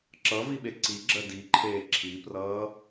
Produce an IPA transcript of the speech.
ǁ ʌ v i ɓ e ǀ i ɡ͡ǁ ɜ d i ǃʰ eː ǁʰ i p r ʌː

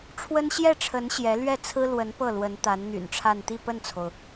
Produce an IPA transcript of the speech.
ʈ͡ʂʰ w ə˥ n ɕ j ɛ˥˩ ʈ͡ʂʰ ə˧˥ n ɕ j ɛ˧˥ l ɥ ɛ˥˩ t͡sʰ ɹ̩˥ l w ə˧˥ n p ɤ˥˩ l w ə˧˥ n t̪ a˧˥ n n̪ y̰˨˩ n ʈ͡ʂʰ a˥˧ n t̪ i˥˧ p ə˥˩ n t͡sʰ o˩ ʊ̯

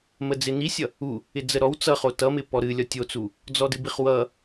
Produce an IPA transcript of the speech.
m ə d͡z ɪ n i sʲ ʌ | u | ɪ d͡z ə ɾ ɔ w t͡s ʌ χ o t ʌ m ɪ p ɔ ɾ ɨ lʲ ɒ tʲ o t͡s u | d͡z ɔ d ɨ b i χ w ʌ

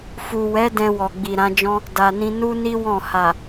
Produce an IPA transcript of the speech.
f u˨ w ɛ˨˦ d ɛ̃˧ w ɔ˨ ɡ͡b i˨ ɾ ã˨˦ d͡ʒ ɔ̃˦ | d a˨ n ĩ˧ n u˦ n i˦ w ɔ̃˦˨ h a˨

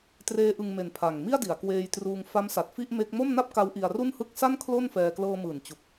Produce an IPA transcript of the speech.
t r eː˦˥ ʔ ɯ˧ ŋ m e˨˩ n pʰ a˨˩ ŋ m i˥˩ a̯ d i˩˦ a̯ k w eː˧ j t r uː˧ ŋ f a˦˥ m s a˨˩ t̚ f i˥˩ ʔ m e˦˥ k̚ m o˥˩ m n a˥˩ p̚ k a˦˥ w ʔ i˧ a̯ r u˥˩ n h ɯ˥˩ k̚ s a˥˩ n kʰ l o˥˩ n f ɛː˧ k l ɤː˧ m ɯː˩˦ n t͡ɕ u˨˩ k̚

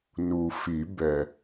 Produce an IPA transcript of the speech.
n u˨ f i˨˩˦ b ɛ˨

